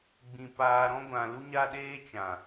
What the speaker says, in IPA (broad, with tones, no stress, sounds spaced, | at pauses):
ɡ͡b ĩ˨ p aː˧ ɾ ɔ̃˦ ɡʷ ã˧ l u˦ ɲ a˦ ɗ eː˦ t͡ʃ ã˨